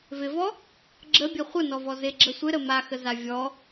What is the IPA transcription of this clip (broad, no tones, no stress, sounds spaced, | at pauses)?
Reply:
v ɪ v ɔ | ɡ͡ǁ ə bʲ ə χʷ ə n ɔ v ɔ z ɪ ɡ͡ǁ ə sʷ ɪ ɾ ə m a x ə z a vʲ ɔ